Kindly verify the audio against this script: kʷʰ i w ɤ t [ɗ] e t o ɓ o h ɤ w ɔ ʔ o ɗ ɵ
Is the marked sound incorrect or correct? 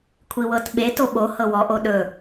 incorrect